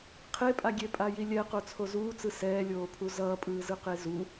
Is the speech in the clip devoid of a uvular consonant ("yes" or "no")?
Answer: no